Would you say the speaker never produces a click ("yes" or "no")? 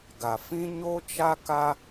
yes